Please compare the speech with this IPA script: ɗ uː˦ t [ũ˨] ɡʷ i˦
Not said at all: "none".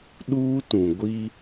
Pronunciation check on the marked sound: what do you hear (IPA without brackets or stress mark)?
ũ˨